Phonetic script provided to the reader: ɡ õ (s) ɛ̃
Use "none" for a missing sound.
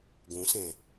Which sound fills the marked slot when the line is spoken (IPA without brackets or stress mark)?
s